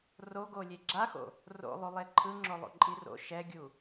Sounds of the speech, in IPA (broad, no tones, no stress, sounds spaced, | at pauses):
r o ɡ o lʲ e ɡ͡ǁ a x o̰ | r o̰ lˠ u lˠ e ǃʰ ɯ ŋ͡ǁ o lˠ o̰ ǃʼ i r o̰ ʃ ɛ ɡʲ u